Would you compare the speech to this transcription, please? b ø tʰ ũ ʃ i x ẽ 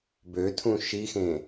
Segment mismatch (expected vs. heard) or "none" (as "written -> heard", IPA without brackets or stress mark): none